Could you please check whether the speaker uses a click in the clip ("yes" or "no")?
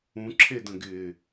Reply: yes